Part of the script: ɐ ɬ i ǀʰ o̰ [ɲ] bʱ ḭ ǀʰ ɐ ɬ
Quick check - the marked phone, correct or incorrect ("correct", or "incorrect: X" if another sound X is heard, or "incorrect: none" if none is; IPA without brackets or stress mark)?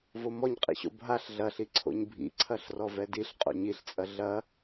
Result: correct